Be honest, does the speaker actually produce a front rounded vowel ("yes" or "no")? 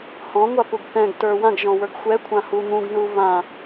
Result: no